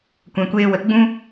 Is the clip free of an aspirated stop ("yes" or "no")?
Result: yes